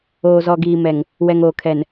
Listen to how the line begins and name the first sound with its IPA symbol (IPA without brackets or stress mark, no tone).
oː